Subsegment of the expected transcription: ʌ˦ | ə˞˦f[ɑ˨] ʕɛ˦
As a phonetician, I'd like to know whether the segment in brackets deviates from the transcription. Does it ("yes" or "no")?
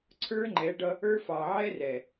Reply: no